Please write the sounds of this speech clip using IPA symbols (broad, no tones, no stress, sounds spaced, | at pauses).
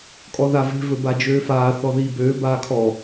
kʼ ɔ ð a v e̤ v ɵ b a d͡ʒ øː f aː θ ɔ ð iː b øː b aː kʰ ɔ